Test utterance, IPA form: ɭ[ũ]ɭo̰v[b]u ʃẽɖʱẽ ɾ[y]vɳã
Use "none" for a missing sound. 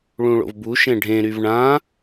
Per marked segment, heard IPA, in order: ũ, b, y

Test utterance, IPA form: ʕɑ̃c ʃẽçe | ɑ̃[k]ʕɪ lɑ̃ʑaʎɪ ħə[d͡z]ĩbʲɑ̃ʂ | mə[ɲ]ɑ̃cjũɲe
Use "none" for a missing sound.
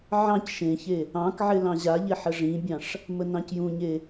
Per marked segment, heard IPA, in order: k, ʐ, n

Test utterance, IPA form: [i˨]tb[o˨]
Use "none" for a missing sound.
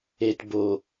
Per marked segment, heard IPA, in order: e˨, o˨

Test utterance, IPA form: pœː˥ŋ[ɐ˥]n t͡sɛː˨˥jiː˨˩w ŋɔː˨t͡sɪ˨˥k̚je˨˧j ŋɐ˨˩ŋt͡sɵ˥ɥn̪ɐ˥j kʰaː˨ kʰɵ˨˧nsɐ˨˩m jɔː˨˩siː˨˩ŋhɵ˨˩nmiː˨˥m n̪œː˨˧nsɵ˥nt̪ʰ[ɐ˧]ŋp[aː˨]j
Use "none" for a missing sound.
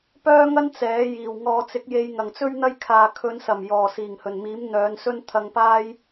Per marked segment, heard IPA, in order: ɐ˥, ɐ˧, aː˥

